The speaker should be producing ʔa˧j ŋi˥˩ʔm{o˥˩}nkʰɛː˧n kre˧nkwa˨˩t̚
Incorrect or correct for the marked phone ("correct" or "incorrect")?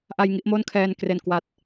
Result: correct